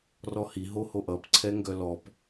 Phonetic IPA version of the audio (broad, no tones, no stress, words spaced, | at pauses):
rɔhi ɦohoʔʌp ǀʰɛŋɡœlɔp